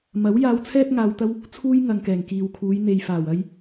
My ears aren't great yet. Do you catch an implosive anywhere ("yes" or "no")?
no